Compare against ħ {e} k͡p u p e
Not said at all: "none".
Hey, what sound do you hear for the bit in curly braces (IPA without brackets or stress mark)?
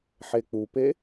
e